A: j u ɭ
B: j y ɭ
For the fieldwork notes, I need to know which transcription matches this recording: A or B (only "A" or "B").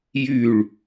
B